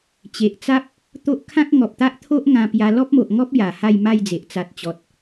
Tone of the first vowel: low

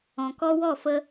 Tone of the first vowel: low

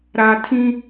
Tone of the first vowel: low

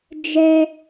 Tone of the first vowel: high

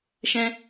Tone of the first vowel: high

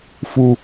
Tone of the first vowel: high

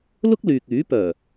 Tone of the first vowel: high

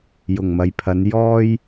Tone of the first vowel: low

